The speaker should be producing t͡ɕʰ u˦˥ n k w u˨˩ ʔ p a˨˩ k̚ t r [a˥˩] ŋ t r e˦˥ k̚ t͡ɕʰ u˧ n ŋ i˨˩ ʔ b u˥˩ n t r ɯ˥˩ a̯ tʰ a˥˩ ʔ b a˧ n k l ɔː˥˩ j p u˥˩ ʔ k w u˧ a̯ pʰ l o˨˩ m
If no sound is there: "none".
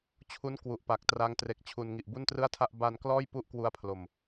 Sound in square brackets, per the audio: a˦˥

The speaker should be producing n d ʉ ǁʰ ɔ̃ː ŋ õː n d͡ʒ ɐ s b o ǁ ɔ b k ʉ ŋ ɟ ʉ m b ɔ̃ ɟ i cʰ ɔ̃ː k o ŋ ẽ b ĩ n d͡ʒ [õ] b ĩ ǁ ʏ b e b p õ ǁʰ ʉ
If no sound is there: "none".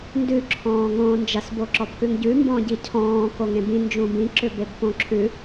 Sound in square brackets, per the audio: ũ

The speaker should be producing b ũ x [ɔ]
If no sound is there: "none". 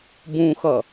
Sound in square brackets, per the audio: ʌ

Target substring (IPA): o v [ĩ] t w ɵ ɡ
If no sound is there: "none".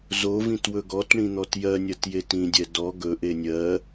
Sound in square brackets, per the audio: ĩ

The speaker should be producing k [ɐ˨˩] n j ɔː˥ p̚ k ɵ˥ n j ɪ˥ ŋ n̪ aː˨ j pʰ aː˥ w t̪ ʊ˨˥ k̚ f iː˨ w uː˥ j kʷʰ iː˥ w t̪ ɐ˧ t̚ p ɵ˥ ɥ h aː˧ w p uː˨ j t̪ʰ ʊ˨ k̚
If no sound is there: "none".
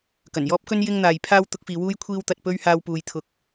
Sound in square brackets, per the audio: ɐ˨˩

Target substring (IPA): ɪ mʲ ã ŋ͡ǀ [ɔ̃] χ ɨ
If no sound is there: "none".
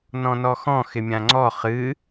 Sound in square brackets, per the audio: ɔ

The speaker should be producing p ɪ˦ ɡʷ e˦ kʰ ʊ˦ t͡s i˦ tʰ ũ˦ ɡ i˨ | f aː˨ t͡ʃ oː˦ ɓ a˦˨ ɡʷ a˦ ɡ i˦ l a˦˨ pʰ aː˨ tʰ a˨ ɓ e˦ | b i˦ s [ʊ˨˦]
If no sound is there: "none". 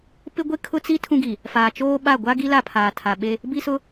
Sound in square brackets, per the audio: ʊ˦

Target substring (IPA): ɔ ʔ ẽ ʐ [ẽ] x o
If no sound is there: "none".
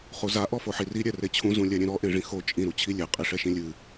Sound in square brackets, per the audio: ĩ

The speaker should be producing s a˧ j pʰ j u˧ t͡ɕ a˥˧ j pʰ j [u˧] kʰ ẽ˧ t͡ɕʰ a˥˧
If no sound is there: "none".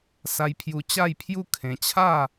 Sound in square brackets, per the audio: u˥˧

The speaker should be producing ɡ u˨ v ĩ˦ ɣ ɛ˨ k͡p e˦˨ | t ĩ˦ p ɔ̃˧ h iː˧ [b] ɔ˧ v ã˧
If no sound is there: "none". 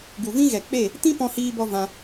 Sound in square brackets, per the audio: b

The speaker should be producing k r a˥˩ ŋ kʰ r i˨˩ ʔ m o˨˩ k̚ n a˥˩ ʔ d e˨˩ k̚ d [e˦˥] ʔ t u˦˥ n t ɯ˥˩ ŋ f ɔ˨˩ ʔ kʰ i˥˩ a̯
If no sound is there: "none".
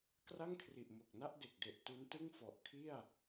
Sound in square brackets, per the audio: e˨˩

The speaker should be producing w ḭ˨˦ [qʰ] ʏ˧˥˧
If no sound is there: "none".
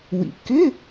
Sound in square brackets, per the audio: k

